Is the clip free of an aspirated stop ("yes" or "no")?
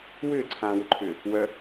no